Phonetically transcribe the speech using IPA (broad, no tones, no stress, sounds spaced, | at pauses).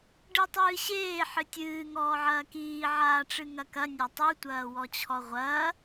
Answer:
ɖ ɨ tˤ ɨː ɕ eː ħ ɨ tʲ ɨː ŋ ɔː ʕ ɐː k iː ʕ aː ʈ͡ʂ ɨ ŋ ɐ k ɐ nʲ ɐ tˤ u tʷ ɐː w ɔ t͡ɕʰ ɔ ʁʷ ɐː